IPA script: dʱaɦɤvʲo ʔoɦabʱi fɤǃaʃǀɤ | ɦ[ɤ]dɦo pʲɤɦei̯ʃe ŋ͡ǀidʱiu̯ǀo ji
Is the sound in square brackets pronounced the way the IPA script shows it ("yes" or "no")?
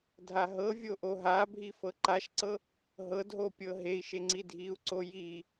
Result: yes